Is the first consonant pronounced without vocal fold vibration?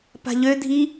yes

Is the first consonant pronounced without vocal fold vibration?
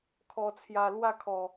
yes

